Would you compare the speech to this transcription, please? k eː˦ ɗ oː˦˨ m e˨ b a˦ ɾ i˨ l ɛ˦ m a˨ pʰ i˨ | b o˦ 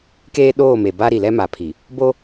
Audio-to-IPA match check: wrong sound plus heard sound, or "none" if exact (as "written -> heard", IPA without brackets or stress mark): none